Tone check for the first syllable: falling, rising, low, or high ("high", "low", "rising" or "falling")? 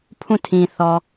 falling